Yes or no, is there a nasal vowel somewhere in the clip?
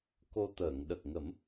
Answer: no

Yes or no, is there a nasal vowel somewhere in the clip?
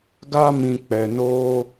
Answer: yes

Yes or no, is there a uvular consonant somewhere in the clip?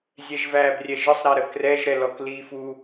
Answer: no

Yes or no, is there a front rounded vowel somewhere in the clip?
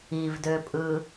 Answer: yes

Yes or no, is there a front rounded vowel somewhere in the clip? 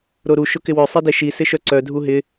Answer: yes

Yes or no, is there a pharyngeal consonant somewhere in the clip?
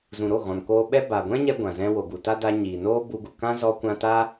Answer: no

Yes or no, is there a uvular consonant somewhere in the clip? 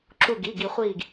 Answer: yes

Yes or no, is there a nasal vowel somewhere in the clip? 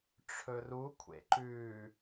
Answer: no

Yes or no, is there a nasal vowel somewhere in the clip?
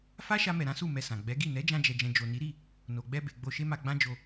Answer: yes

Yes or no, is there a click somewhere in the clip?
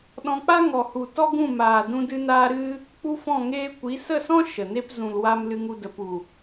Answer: no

